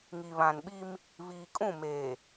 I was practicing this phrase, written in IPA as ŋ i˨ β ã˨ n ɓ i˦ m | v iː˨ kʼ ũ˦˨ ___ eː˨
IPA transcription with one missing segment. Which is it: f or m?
m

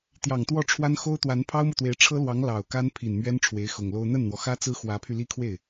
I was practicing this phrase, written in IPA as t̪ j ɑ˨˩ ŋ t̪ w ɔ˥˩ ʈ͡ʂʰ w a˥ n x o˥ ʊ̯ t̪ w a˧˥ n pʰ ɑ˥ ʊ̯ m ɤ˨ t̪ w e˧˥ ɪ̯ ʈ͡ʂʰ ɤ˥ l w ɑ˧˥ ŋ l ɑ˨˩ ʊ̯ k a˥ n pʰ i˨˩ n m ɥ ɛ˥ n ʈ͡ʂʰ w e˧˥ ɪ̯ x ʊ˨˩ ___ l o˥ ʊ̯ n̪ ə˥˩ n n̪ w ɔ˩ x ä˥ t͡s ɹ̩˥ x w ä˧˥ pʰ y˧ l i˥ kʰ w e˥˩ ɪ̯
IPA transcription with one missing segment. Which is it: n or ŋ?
ŋ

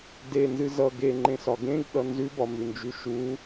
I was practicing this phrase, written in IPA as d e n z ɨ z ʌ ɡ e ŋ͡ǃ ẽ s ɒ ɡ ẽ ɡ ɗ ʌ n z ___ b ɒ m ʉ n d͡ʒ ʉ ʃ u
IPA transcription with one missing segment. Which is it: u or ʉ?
ʉ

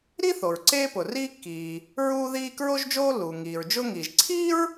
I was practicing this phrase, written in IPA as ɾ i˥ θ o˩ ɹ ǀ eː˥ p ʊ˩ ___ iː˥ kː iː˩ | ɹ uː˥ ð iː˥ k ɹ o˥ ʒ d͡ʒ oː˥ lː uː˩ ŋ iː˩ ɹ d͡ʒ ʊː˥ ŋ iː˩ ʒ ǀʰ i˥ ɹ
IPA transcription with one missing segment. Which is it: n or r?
r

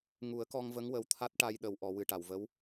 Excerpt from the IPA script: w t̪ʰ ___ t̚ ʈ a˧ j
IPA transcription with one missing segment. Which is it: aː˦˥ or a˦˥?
a˦˥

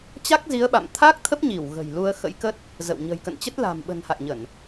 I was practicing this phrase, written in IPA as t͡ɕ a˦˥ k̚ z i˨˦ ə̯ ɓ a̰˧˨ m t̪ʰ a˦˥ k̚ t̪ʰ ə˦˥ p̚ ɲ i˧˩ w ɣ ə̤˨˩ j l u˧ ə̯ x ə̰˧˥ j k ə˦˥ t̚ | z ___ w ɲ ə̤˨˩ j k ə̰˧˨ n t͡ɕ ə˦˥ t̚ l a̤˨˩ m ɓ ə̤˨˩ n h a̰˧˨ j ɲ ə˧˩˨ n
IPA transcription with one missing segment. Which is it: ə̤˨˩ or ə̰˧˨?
ə̰˧˨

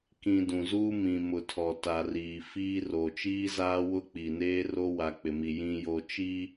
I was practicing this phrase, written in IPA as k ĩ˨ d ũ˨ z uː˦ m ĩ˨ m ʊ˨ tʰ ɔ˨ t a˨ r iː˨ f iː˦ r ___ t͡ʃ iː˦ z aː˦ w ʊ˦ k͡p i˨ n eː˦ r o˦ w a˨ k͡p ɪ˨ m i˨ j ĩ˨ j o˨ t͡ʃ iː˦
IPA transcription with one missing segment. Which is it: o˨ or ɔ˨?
o˨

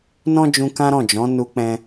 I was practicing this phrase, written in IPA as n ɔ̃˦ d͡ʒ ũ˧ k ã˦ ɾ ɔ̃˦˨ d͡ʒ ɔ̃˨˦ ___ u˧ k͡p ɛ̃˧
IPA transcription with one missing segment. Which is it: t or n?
n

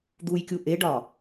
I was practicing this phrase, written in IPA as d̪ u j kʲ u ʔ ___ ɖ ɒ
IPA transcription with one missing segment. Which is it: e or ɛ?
e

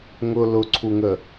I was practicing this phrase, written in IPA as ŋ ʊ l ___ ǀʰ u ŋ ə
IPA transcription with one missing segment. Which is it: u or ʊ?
ʊ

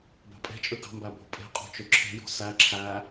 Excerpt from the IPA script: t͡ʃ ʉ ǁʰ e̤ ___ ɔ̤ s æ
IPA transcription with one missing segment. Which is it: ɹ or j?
j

